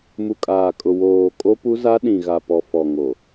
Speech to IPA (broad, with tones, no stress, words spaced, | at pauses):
mu˨kʼaː˨kʼʊ˨ woː˨ kʼo˦pu˦za˦ ɗĩ˨ɣa˨pɔ˨ fɔ˨ŋo˨